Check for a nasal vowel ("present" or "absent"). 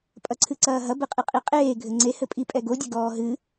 absent